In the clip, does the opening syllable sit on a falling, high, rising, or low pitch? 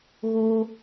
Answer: high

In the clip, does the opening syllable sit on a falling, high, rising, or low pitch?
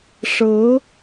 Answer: rising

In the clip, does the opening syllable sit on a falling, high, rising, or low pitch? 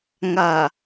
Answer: low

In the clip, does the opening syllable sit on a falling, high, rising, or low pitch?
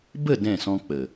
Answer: falling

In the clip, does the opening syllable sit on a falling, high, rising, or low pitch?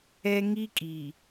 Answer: high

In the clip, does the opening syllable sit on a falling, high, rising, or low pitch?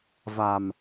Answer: low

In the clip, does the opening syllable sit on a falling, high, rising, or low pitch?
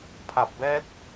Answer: low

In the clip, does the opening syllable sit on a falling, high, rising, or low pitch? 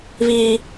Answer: high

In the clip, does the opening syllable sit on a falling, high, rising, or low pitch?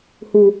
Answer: low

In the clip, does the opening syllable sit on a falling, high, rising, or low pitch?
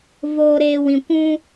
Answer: low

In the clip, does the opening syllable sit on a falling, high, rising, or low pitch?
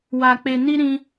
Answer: low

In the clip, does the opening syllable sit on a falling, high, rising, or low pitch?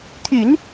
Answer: low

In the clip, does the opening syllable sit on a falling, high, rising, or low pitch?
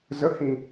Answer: rising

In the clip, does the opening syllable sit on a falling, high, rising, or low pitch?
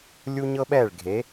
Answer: high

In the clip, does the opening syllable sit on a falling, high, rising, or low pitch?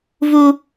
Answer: high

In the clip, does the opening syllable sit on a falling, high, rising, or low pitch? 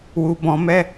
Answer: low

